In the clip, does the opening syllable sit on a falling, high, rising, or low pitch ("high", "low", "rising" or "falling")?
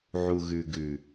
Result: low